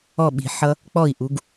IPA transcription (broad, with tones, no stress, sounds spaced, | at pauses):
ɔ˥˩ ɓ i̤˨˩˦ ħ ʌ˦˥ | k͡p ɔ˥˩ i̯ ʔ u˨˦ ɡ